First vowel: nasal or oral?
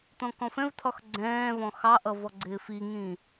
nasal